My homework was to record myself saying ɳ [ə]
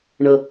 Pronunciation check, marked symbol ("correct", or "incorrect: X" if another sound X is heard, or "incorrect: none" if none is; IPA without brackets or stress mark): correct